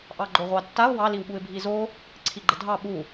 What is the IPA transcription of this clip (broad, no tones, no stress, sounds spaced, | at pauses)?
ʔ ɑ ɡ͡ǃ o ʁʷ ɑ tː a ʊ̯ w ɑ l i w ɓ u ɪ̯ bʱ i z o | ǀʰ i ɡ͡ǃ ə dʱ ɑ ɓ u